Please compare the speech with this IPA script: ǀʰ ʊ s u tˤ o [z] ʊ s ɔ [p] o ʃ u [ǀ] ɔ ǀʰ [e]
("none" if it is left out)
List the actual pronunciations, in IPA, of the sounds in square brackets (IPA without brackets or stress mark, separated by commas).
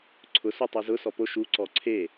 z, p, ǀ, e